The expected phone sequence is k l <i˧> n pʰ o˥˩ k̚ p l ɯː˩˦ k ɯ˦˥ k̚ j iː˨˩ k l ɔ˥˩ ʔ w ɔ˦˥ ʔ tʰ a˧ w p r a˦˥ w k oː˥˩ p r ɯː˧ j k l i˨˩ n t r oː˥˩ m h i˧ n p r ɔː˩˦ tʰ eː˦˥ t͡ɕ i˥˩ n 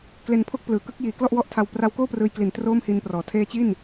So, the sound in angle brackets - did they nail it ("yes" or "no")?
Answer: no